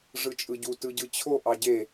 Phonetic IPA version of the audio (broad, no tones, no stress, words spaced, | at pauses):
ʐɯt͡ʃʼɯɟu tɯɟɯt͡ɕʰo ʔɑɟe